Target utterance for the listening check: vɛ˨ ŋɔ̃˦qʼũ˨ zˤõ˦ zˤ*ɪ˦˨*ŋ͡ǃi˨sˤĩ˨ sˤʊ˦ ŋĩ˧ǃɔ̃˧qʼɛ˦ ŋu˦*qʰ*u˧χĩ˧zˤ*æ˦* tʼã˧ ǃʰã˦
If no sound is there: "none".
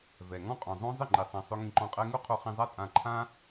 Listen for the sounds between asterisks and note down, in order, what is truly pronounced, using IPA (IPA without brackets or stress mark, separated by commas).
ɪ˦˨, qʰ, a˦